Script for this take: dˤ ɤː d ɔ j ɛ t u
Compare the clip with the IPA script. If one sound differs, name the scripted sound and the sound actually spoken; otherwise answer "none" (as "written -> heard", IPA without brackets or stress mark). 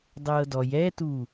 none